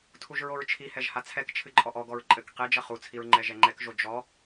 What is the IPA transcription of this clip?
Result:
tʰ u ʒ ɹ o ɹ t͡ʃʰ i h ɛ ʒ h a t͡sʰ ɛ k t͡ʃʰ ɨ ǃʼ ɔ ʔ ɔ ɡ ɔ ɹ ǃʼ ɘ k q e d͡ʒ ɐ χ u t͡sʰ i ɹ ŋ͡ǃ ɛ ʒ ɛ ŋ͡ǃ ɛ k ʒ o d͡ʒ ɔ

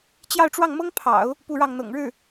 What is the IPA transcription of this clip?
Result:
t͡ɕ j ɑ˥˧ ʊ̯ ʈ͡ʂ w ɑ˥˩ ŋ m ɤ˥ ŋ pʰ ɑ̰˨˩˦ ʊ̯ | p u˥˧ ɻ ɑ˥˩ ŋ n̪ ɤ̰˨˩ ŋ ɻ ɻ̩˥˩

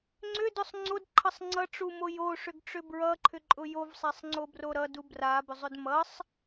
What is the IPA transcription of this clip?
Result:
ŋ͡ǀ ʏ d ʊ sˤ ŋ͡ǀ o d ǃʰ ʌ sˤ ŋ͡ǀ ʌ ʈ͡ʂ u m o j o ʂ ʏ ɡ ʈ͡ʂ ʏ b ɹ ʌ ǃʰ ʏ ǃʼ ʊ j o v sˤ a sˤ ŋ͡ǀ o b r o ɾ ʌ d u b r a b ʏ zˤ ʏ d m ʌ sˤ

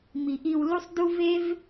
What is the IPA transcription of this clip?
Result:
m i˩ ʔ i˧ w l u˥ sˤ d u˥ v e˥ v

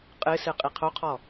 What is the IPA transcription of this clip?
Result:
qʼ ɨ s ɨ qʼ i qʰ o qʰ ɔ

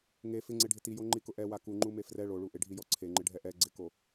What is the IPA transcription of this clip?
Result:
ŋ e f ɪ ŋ͡ǀ e ɖʱ ɪ t i j o ŋ͡ǃ i k ʊ ʔ ɛ w a k u ŋ͡ǃ u m e f r ɛ ɭ o ɭ u ʔ ɪ ɖʱ i j ɔ ǀʰ e ŋ͡ǃ ɪ ɖʱ ɛ ʔ ɛ ɡ͡ǀ ɪ k o

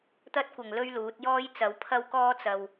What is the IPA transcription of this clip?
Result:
t̪ ɐ˥ t̚ kʷ ɐ˨˩ ŋ l ɵ˥ ɥ l uː˨˥ t̚ j ɔː˥ j t͡s ɐ˨˥ w pʰ ɐ˥ w k ɔː˥ t͡s ɐ˨ w

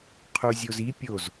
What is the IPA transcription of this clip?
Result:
qʰ u zʲ o z i pʲ o z

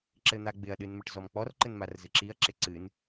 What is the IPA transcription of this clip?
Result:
ǁ ɘ n̪ a ɡ͡b ɪ ɐ̯ ɗ ɨ n m ə ʈ z ɔ m k͡p ɔ r ǃ ɘ n m a r z ɨ ǁ i ɐ̯ ǁ ɪ ǀ ɨ n

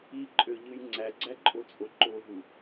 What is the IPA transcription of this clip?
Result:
i ǃʼ ø ʎ ɯ j ŋ͡ǀ æ ɡ͡ǀ æ ǃʼ o t͡sʼ o ǃ o ɦ u

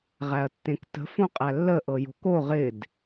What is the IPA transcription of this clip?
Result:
ʁ æ ɐ̯ tː ẽ k t ə̤ f õ qʼ æ lː ə ʔ ɤ j o̤ k o ʁ ɪ d

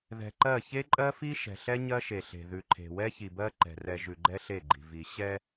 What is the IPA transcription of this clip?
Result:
ð ɛ̤˨ ǃ ɜ˦˨ ç e˦ ǃʼ ɜ˦ f i˦ ʃ ɛ̤˨ ɬ ɛ˦ ɲ ɜ˦ ʃ e˨ ɬ e̤˨ ð ʉ˨ ǃʰ e̤˨ w ɛ˦ ç i˨ b ɜ˦ ǃ ɛ̤˨ r ɛ˨ ʒ ʉ˨ ɡ͡ǃ ɛ˦ ɬ e˦˨ ɡ͡ǃ i̤˨ v i˨ ɕ ɛ˦

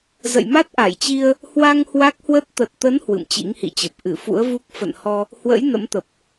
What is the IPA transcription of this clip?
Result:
z ə̰˧˨ j m a˦˥ t̚ ʔ a˧˩ j t͡ɕ i˧ ə̯ | h w a˧ ŋ h w a˦˥ k̚ h w ə˦˥ t̚ t̪ ə˨˩ t̚ t̪ ə˨˦ n h w ɨ̰˧˨ m t͡ɕ ḭ˧˥ ŋ h ḭ˧˨ t͡ɕ ə˨˩ p̚ ʔ ɨ˧˩ f ṵ˧˥ ə̯ v u˦˥ k̚ f ə̰˧˨ n h ɔ˧ | h w ə̰˧˥ j n ə̰˧˥ m t̪ ə˨˩ p̚

